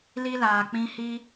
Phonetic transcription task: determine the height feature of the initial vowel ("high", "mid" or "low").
high